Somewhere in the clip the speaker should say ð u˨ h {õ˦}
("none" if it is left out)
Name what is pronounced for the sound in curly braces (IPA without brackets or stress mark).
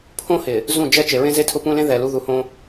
õ˦